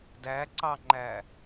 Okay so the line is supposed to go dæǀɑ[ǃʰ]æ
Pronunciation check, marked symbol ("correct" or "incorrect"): incorrect